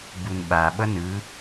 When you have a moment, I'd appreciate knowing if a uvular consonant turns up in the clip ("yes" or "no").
no